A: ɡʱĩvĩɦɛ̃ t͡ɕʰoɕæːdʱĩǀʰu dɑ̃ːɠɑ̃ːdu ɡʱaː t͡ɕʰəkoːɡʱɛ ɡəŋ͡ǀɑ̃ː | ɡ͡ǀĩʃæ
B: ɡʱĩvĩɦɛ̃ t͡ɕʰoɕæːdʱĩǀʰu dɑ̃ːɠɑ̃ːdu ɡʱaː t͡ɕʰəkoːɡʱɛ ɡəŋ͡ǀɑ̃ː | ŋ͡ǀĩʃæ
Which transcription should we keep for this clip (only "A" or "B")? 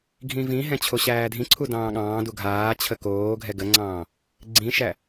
A